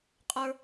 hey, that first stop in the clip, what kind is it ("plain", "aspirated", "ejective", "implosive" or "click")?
ejective